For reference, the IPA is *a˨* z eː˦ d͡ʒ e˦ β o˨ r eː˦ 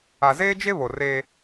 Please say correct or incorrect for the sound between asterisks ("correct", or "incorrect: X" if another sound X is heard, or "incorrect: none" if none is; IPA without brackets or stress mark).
correct